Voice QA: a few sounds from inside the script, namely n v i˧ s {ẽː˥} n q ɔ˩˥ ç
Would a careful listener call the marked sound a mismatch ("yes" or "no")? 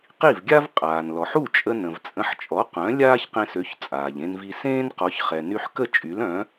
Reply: no